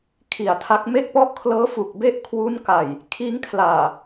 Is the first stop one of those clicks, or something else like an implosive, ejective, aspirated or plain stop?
aspirated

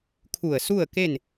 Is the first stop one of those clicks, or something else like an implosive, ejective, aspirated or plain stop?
aspirated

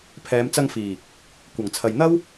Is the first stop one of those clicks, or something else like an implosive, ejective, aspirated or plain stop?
aspirated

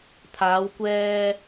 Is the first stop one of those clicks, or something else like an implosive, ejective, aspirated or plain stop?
aspirated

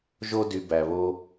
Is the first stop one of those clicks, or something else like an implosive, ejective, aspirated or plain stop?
plain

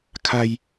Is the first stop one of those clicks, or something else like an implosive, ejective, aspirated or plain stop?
aspirated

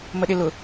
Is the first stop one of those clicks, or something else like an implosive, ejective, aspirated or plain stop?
implosive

